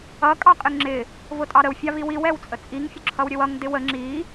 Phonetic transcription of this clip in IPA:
ʌ kʼ ɑ qʼ ɪ ŋ ŋ͡ǁ ɪ | v ʊ tʼ ɑ ɾ ə w fʲ ɑ v i w i w ɛ w t͡sʼ ə t͡sʼ i ŋ fʲ ʊ ǁʰ ʌ w ɾʲ ə w ʌ ŋ d ɪ w ə ŋ͡ǁ i

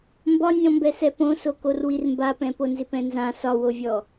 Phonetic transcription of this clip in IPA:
m b ɒ nʲ ɔ̃ m b ɛ s ɛ p õ s o k o r w i r m b a p ɛ̃ p o n z ɪ p ɛ̃ n z ã s ɒ w o vʲ ɔ

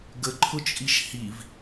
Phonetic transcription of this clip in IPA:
ɡ ə ǃʰ ʊ t͡ʃʼ i ʃ h i v

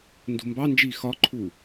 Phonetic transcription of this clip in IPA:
n d ṳ m b ɑ n d͡ʒ iː x ɒ ǃʰ u

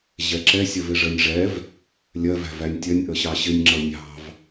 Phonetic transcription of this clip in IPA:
ʑ ɛ ǁ ɛ sʲ ɜ v ɪ ʐ ɜ nʲ ʐ ɛ v | lʲ ɜ v æ̤ v æ nʲ tʲ ɜ nʲ ʔ ə ɕ ɑ ɕ ɪ nʲ ŋ͡ǁ ʌ nʲ ɑ̤ v

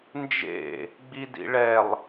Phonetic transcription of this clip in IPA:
n d͡ʒ ḛ | ɡ͡b i d ḭ ɭ ɛ lˠ

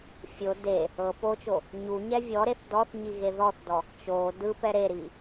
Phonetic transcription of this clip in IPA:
fʲ o d e | ɤ p o t͡ʃ o | ɲ u ɲ ɛ vʲ ɔ ɾ e θ d ɔ θ ɲ i ɣ e ð ɔ θ d ɔ | t͡ʃ o d ɯ p ɛ ɾ e ɾ i

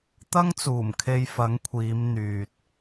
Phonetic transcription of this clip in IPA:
t̪ ɐ˥ ŋ t͡s uː˨˩ m kʰ e˧ j f ɐ˨˥ ŋ kʷʰ iː˨˧ m n̪ yː˨ t̚

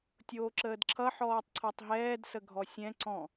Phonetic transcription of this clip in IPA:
tʲ oː ǁ əː d ǁʰ ʌ ħ ɔː tˤ ǀʰ ɔ tˤ ɦ ɛː d s ə ɡʱ ɔ sʲ ɛ̃ ǀ ɔ̃

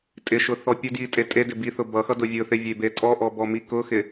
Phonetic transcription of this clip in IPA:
tʼ ɪ ʃ ʊ θ ɔ pʲ ʊ d j i tʼ e tʼ e d ɪ b i θ ʊ b ʌ x ʌ d ʊ vʲ ʊ θ ɪ vʲ e b e tʼ ɔ ʔ ɔ b ɔ m i k ʊ x ɪ

